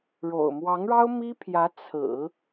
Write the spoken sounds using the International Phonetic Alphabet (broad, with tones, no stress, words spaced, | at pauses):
ɻo̰˨˩ʊ̯ mwɑ˧˥ŋɻɑ˥ʊ̯mi˥pʰjä˧˥ t͡sʰɹ̩˨˩˦